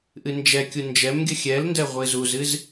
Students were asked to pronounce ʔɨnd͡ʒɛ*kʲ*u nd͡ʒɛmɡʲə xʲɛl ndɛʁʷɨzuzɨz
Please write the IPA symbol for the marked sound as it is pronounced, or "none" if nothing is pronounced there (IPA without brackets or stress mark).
kʲ